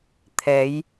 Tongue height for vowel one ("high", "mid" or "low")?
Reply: mid